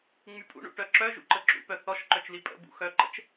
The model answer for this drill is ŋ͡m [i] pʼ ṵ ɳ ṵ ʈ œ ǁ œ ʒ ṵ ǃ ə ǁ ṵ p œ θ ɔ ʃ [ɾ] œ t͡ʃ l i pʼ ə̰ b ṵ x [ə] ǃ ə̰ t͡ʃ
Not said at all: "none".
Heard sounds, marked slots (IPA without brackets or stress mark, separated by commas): y, ǃ, œ